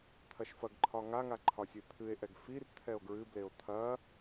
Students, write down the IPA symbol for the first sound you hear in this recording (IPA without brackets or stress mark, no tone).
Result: t̪ʰ